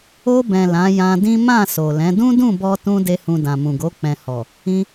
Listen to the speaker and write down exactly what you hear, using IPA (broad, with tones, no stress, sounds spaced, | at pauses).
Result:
o˧ b ɛ̃˨ l ã˨˦ j ã˧ d ĩ˦ m ã˦˨ s o˨ l ɛ̃˨˦ d ũ˦ d ũ˦˨ b ɔ˧ t ũ˦ d e˦ h ũ˧ d ã˨ m ũ˨ ɡ o˨˦ k͡p ɛ̃˧ h ɔ˨ | ĩ˧